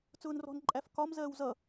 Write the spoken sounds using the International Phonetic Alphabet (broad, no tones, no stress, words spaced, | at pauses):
t͡sʊːnrɔ̤n ǃʼæfkɒm zɜːwzʌ